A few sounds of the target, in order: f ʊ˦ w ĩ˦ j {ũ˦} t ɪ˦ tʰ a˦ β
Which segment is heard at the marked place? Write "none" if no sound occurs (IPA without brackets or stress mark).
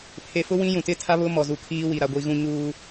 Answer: ũ˨